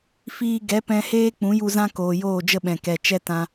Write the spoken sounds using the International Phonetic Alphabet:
f iː˧ ɡ ɛ˨˦ p ɛ̃˧ h eː˦ k͡p ũ˨˦ j u˧ z ã˦ k oː˨ j oː˦˨ d͡ʒ ə˦ ɓ ɛ̃˨ k ɛ˨ t͡ʃ ɛ˦ t ã˧

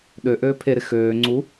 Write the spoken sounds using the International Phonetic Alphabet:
ɗ ø ʔ øː pʰ e ɾ ɪ x øː ŋ͡ǀ u

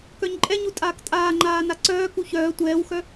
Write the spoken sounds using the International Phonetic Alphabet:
k œ ɲ ǃʼ ɛ ɲ u tʼ aː k tʼ aː ŋ͡ǃ aː n a ǀ œː k u ç œː tʷ ɛː w x œ

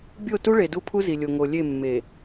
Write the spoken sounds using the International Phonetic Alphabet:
bʲ o˦˨ t u˦ ɭ e˨ d u˦ pʰ u˦ z i˨ lʲ o˨ ŋ o˨ lʲ e˦˨ mː e˨

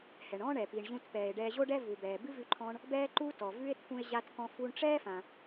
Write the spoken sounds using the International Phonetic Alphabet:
h ɛ˩ ɳ ɔ̃˥ ɳ ɛ˩ p i˩ ɳ ʑ ũ˧ t p ɛː˩ e̯ ɖ ɛː˧ ʑ o˥ ɖ ɛ˥ v u˩ b ɛː˩ b ɨ˥ v ʉ˧ ǃʰ ɔ̃˧ ɳ | b ɛː˥ ǃ uː˥ t ɔ˩ v ʉ˥ e̯ t̪ʰ ũ˧ e̯ ʑ a˧ t k ɔ̃˧ f u˧ ɳ ʈ͡ʂ ɛː˥ f ã˩

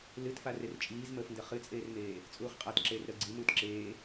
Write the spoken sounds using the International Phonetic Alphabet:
l ɨ t f a r e r t͡ʃʼ iː z m əː f n d ə χ ɨ t͡sʼ eː r m eː | t͡sʼ uː χ qʼ a t ǁ eː r ɾ əː ɡ͡ǀ i m uː t ǁ eː

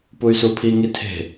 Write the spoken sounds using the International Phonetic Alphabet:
p u y̯ s u pʰ i ŋ i tʰ e̤

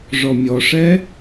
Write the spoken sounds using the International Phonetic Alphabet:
ʐ ɔ mʲ ɔ ʂ ɛ

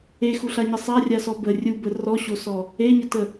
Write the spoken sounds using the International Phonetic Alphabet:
e x u ɬ a ɲ ə sˤ a rʲ a s ɔ b ə rʲ u b ə r ɔ ɕ o s ɔ | e ɲ ə t ə

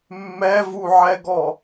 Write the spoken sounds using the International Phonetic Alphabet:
mː ɛ v u ʕ ɛ ɡ ɔ

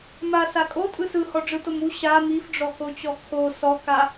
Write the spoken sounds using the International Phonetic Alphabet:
m a s a kʼ o tʼ ɯ s ɯ h ɔ ɖ͡ʐ ɯ t o m u ɕ a m i f ɖ͡ʐ ɔ k o t͡ɕ ɔ kʰ o s ɔ k a

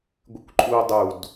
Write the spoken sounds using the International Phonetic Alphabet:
ɡʷ ɪ kʷ ǃʼ u dˤ u d

